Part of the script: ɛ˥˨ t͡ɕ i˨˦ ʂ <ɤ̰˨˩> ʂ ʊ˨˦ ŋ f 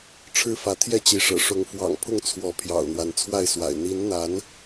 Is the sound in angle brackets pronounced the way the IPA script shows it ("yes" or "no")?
yes